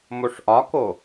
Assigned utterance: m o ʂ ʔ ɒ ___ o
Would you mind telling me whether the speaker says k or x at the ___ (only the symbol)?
k